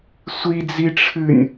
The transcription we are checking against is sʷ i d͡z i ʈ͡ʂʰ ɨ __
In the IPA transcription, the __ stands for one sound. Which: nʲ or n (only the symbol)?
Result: nʲ